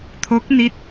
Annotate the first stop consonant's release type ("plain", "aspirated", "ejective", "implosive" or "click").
aspirated